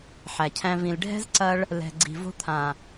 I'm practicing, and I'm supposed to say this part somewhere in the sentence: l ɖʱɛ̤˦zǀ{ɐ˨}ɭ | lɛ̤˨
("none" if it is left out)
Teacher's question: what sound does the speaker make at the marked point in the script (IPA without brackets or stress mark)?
ɐ˧